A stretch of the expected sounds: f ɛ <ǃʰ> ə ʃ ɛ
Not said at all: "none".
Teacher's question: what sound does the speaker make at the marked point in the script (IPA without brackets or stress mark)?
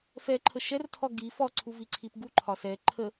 ǃʰ